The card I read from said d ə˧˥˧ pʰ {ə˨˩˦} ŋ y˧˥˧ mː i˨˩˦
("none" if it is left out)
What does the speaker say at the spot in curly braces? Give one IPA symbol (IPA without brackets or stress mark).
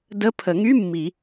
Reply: ə˨˩˦